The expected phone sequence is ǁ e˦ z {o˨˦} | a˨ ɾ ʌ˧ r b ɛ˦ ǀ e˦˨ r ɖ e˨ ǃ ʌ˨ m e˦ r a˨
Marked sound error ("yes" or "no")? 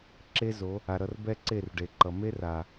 no